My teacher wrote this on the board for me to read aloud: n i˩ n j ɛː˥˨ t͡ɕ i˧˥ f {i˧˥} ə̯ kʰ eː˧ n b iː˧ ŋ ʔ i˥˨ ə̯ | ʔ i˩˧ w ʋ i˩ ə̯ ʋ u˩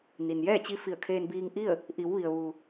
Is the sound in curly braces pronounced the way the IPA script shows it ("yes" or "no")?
no